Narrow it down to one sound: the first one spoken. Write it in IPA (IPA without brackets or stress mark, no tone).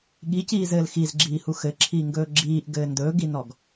ɠ